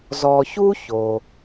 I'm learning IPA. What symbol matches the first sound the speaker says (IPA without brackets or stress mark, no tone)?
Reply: z